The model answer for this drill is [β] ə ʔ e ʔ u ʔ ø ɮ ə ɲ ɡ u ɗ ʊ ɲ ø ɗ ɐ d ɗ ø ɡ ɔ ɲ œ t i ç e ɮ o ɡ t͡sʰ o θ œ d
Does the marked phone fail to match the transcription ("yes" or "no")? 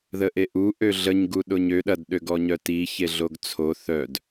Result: yes